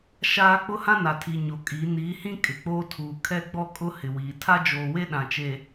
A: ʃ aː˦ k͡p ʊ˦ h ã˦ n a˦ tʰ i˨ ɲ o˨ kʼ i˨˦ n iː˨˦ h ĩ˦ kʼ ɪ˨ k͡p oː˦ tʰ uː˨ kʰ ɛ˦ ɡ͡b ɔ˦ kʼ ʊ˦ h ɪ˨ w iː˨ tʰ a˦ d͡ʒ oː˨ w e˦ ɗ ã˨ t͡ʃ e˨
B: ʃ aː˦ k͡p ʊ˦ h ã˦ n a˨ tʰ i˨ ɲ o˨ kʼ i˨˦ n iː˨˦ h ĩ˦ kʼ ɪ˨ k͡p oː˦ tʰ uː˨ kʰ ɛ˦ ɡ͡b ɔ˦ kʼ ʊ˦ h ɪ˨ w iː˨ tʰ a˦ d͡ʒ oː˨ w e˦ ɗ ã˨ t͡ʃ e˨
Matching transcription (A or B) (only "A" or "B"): B